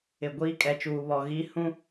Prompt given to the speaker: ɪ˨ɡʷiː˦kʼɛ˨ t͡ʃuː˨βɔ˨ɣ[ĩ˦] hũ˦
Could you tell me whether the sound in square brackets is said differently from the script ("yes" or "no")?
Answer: yes